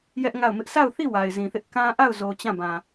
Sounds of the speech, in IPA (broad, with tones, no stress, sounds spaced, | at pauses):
j ɛ˦ ʔ ŋ a˦˨ ʊ̯ m ɪ˦ ʔ s a˦˨ ʊ̯ θ i˦˨ w a˨ ɪ̯ z ĩ˨ θ ɪ˦ ʔ k ã˦ ʔ a˦˨ ʊ̯ z o˨ t͡ɕ ã˦˨ b ã˨